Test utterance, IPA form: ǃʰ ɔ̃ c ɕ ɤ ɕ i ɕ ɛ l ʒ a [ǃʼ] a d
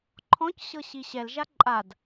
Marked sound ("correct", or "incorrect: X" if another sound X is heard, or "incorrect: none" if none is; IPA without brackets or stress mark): correct